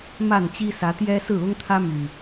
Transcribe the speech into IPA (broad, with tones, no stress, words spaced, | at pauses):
ma˥˨nt͡ɕi˦sä˨˦t̪jɛ˦ sɹ̩˥˨ʊ˦ŋt̪ʰä˦my˨˩